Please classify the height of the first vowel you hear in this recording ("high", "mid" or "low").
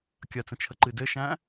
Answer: low